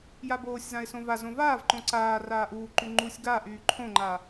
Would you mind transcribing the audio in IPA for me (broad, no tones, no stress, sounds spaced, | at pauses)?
j a b oː sʲ z ã ɪ̯ s õ v a z õ v aː v ǃ õ ǀ aː r aː ʔ uː ǃ y ŋ͡ǃ u sʲ ɡ a ʔ yː ǃʰ õ ŋ͡ǃ a